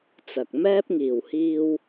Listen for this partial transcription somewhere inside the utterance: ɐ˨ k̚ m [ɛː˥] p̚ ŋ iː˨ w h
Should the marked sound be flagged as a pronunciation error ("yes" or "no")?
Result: no